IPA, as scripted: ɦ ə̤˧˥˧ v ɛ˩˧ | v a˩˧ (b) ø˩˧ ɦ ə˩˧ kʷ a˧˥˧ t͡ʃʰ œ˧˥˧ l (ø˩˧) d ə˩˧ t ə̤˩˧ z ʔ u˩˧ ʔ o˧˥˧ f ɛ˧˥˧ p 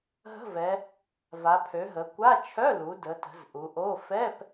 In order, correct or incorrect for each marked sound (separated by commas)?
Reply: incorrect, incorrect